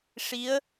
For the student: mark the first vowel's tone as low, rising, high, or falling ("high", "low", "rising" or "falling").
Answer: rising